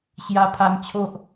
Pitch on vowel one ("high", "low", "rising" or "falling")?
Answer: high